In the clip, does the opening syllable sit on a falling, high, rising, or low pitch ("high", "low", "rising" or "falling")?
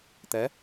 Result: rising